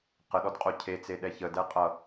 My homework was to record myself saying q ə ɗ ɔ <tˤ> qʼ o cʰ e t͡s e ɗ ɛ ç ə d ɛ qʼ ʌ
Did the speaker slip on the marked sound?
yes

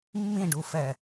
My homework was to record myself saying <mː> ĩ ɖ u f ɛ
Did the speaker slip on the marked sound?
no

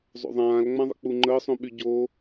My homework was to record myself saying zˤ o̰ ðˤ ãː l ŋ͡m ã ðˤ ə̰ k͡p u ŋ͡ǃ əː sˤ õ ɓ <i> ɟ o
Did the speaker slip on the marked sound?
yes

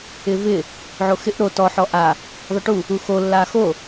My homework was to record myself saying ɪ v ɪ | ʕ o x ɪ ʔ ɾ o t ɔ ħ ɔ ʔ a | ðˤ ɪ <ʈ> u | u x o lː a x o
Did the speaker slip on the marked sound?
no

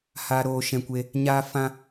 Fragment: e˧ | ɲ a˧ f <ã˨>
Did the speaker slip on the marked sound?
yes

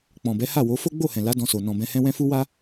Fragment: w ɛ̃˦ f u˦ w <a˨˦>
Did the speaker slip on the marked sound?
yes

